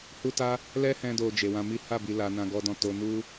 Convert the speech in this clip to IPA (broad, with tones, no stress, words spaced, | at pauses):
hu˦ta˦ | lɛ˦ hɛ̃˦do˧ d͡ʒe˨wã˧mi˦ ha˦˨bi˨la˨nã˨ ɡɔ˨dɔ̃˨ to˨nu˧